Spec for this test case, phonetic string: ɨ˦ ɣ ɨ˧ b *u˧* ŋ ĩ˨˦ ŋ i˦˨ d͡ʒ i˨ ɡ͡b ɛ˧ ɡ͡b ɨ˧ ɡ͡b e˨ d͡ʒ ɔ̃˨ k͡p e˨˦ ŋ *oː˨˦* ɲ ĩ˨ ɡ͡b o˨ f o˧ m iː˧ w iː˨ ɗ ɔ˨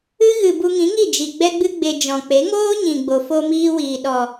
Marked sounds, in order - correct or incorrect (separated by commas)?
correct, incorrect